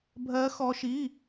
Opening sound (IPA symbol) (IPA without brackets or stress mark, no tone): bʱ